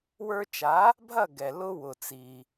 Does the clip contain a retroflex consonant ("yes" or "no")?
no